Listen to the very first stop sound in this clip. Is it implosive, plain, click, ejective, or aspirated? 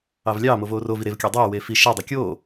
plain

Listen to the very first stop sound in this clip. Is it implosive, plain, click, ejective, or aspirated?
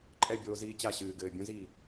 click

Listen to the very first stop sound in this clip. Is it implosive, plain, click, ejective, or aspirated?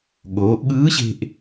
implosive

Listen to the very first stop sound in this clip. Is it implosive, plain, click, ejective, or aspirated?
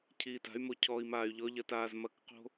aspirated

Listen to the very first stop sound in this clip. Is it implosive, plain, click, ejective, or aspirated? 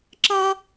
click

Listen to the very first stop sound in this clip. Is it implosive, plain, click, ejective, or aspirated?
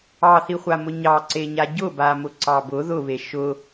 click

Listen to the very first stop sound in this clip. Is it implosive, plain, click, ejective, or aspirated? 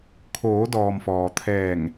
aspirated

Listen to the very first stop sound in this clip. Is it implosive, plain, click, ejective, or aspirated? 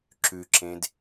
click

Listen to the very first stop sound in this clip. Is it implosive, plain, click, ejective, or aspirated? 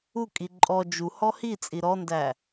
ejective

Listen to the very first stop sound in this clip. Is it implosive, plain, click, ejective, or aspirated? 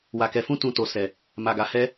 plain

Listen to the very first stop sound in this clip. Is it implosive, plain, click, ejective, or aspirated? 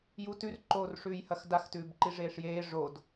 plain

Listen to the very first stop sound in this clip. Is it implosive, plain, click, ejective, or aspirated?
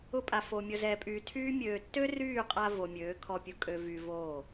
ejective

